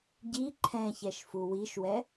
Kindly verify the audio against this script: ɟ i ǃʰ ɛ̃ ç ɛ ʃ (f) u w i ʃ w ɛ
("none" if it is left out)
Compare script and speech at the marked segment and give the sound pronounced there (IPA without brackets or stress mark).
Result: f